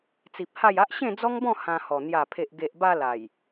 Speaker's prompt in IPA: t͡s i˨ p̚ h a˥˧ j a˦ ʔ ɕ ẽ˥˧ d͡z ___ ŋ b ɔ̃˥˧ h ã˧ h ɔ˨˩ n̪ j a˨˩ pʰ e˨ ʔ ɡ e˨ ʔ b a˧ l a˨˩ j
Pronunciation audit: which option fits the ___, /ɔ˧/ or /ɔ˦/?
ɔ˦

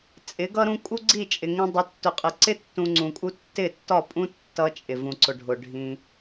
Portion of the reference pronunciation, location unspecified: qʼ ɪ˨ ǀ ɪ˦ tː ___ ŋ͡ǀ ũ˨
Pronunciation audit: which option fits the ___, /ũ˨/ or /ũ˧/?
ũ˧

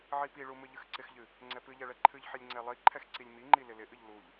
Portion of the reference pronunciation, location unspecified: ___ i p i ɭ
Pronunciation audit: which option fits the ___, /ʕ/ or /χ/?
ʕ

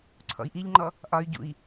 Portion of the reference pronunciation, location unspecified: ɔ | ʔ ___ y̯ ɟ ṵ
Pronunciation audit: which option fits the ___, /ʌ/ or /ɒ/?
ɒ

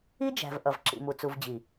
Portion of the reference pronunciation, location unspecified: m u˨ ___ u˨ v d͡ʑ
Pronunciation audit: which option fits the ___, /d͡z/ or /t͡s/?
t͡s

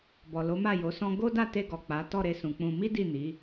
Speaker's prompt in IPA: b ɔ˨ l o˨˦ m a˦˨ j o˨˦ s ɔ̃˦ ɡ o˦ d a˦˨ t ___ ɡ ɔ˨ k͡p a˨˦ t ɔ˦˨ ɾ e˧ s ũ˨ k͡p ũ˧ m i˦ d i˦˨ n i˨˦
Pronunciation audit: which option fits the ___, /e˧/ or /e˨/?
e˧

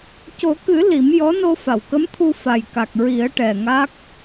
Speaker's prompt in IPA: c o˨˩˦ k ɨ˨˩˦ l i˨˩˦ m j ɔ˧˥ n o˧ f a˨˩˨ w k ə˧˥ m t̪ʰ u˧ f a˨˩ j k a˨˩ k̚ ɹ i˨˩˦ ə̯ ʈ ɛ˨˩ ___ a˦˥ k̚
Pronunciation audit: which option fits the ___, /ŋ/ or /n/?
ŋ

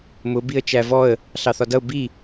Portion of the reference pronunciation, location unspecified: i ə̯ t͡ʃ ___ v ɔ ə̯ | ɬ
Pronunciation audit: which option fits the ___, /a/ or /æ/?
æ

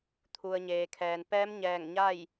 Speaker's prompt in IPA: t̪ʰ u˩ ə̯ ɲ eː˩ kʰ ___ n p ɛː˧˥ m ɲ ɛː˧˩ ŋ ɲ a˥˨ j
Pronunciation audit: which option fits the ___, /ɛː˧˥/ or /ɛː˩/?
ɛː˩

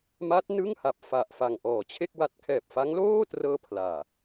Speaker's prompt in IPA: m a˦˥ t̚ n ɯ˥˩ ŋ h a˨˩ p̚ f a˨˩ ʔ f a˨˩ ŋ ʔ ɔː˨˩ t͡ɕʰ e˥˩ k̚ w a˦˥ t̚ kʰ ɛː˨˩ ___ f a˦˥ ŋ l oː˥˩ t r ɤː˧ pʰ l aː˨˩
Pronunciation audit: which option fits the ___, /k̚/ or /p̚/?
p̚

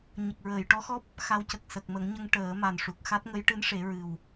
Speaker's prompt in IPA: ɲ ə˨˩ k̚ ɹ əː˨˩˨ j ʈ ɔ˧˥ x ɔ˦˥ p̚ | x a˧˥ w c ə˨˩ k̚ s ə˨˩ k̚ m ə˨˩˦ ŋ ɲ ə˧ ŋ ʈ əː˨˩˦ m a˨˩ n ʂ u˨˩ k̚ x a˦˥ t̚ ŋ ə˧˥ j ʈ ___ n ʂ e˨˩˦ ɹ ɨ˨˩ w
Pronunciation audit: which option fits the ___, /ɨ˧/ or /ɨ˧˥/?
ɨ˧˥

